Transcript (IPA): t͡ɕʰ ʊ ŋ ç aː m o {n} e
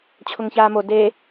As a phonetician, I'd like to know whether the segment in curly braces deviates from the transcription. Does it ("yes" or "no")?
yes